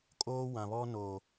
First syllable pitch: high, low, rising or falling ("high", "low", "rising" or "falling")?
high